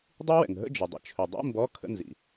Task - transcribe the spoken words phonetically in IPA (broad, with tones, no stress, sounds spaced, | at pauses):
dˤ i˦˥ w ɛ̰˩ ŋ ɦ ə̰˧˥˧ d͡ʒ ə˩ dˤ ə̰˧˩ t͡ʃʰ ɵ˩ dˤ ḭ˧˥˧ m b ɔ˧˥˧ kʰ ə̰˧˥˧ n z ḭ˩